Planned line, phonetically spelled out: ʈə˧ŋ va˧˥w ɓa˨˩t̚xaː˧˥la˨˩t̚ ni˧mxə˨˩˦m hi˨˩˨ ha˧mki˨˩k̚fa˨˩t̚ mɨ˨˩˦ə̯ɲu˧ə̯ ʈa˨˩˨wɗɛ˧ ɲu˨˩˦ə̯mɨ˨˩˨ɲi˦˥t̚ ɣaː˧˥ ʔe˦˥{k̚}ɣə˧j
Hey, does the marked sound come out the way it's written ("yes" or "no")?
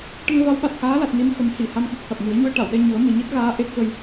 yes